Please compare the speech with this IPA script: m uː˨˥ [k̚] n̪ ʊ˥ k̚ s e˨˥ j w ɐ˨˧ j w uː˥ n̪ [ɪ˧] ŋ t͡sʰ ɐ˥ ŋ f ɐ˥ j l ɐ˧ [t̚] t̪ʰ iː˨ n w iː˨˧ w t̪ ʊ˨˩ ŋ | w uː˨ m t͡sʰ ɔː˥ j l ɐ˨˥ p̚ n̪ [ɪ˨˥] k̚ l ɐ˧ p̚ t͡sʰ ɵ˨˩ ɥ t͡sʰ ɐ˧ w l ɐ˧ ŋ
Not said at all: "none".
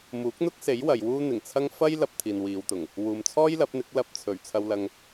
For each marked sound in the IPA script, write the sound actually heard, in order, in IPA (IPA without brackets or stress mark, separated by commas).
k̚, ɪ˨˩, p̚, ɪ˨˥